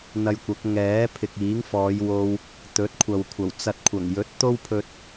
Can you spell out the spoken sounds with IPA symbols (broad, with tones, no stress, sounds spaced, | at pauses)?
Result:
n̪ ɐ˧ j kʷ ɐ˨˥ k̚ ŋ ɛː˨˥ pʰ ɪ˨ k̚ iː˨˥ ŋ f ɔː˨˧ j w o˧ w | t̪ ɵ˨˥ t̚ kʷʰ ɐ˨ w kʷʰ ɐ˨˩ w t͡s ɐ˧ t̚ kʷʰ ɐ˨˩ ŋ j ɵ˨˥ t̚ t̪ o˥ w pʰ ɵ˧ t̚